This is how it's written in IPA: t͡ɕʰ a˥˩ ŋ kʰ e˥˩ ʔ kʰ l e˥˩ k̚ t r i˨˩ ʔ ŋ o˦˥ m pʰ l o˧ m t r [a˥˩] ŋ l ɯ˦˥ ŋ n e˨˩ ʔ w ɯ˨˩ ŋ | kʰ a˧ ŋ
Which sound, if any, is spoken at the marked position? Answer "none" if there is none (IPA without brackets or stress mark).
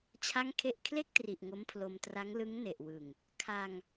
a˦˥